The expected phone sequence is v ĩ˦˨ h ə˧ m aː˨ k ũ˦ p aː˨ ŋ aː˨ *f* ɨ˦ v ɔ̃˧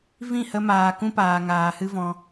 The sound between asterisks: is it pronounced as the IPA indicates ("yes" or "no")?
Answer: no